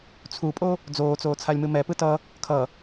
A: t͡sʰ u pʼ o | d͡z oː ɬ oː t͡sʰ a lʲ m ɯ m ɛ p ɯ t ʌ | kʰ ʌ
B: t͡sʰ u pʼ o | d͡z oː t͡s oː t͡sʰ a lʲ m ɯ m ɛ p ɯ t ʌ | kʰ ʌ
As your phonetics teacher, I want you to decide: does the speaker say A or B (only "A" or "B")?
B